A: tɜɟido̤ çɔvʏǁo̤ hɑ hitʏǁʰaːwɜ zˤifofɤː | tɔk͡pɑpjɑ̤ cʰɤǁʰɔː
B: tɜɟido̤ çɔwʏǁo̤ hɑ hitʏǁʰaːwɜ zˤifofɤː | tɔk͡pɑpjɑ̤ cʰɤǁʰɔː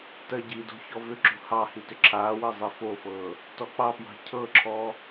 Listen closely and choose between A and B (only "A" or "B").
A